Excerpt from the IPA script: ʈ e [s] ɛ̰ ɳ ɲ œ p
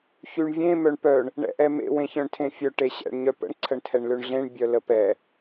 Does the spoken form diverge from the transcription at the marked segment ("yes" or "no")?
yes